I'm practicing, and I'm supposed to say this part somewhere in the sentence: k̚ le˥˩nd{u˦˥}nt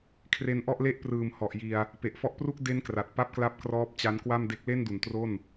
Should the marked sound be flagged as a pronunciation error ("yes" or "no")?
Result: yes